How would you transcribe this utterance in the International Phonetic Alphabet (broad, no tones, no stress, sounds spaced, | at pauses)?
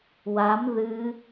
w a m ð ɨ